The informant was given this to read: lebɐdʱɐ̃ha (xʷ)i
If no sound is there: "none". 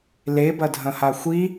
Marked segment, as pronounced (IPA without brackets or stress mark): xʷ